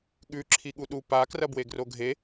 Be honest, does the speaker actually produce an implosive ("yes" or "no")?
yes